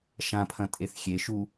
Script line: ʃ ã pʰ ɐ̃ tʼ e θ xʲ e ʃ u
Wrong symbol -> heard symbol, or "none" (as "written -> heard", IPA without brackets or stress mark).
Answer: none